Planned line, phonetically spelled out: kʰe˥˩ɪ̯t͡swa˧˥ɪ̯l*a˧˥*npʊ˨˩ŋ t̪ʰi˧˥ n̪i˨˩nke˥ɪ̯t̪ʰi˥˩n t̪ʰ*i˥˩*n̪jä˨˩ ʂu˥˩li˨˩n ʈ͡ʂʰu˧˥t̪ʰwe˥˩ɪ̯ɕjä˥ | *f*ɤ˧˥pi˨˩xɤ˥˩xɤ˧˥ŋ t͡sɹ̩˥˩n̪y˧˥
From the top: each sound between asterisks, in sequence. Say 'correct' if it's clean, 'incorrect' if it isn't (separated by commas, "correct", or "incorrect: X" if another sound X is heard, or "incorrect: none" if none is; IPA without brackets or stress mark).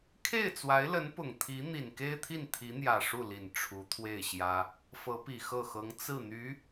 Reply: incorrect: ə˧˥, incorrect: i˧˥, correct